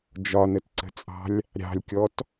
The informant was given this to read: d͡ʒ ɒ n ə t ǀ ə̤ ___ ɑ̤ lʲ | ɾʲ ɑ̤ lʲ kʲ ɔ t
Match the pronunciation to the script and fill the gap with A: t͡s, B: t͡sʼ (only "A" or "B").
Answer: B